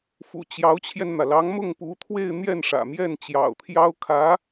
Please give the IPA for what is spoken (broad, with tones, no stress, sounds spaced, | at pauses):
f ṵ˨˩ t͡ɕ j ɑ˧˥ ʊ̯ t͡ɕʰ j ɛ˧ n n̪ ä˩ l ɑ˧˥ ŋ m ʊ˥˩ ŋ p u˧˥ t̪ʰ w e˥˧ ɪ̯ n̪ j ɛ˥˩ n ʂ ä̰˨˩ m j ɛ˥˩ n t͡ɕ j ɑ̰˨˩ ʊ̯ t̪ʰ j ɑ˥ ʊ̯ kʰ ä˧˥